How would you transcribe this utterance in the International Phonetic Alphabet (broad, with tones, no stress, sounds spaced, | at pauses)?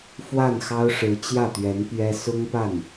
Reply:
f w a˥˩ n x ɑ˥ ʊ̯ ʂ ɻ̩˧˥ t͡ɕ j ä˥˩ t̪ ɥ ɛ˧˥ n p ɥ ɛ˥ s ʊ˥ ŋ p a˥˩ n